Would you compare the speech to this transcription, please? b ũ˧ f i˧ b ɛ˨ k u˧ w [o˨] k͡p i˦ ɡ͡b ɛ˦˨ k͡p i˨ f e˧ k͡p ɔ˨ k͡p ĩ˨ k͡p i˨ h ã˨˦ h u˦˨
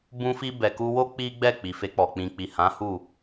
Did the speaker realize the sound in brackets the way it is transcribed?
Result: no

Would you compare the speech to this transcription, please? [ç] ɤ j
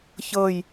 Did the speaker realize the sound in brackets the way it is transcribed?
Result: yes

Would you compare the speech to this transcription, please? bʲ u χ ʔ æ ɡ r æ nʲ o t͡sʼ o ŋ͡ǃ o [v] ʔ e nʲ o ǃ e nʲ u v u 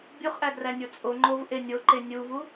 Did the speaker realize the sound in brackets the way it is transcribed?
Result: yes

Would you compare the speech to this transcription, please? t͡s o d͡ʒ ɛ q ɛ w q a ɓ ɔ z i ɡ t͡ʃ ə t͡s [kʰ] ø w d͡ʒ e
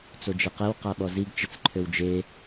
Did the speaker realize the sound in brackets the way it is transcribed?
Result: no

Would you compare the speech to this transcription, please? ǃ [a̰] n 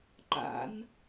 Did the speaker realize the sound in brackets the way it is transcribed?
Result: yes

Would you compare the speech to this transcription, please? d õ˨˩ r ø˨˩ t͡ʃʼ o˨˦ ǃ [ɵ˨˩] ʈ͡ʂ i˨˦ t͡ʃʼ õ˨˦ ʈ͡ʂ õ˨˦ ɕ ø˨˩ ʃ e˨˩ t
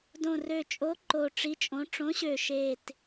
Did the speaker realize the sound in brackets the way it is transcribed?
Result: no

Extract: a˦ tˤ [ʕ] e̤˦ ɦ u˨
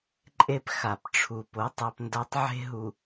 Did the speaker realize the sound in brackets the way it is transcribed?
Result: yes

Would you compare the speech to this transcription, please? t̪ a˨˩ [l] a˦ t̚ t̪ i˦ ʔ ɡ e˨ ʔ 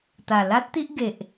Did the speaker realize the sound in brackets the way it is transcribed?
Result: yes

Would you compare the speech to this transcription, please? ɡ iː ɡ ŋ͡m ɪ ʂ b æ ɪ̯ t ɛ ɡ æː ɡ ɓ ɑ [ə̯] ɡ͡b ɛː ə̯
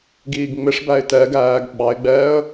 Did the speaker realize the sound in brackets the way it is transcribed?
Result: no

